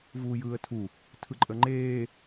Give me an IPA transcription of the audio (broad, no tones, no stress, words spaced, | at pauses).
vuːjɯːə̯tʰu | tʰɯǃʼəŋ͡ǃeː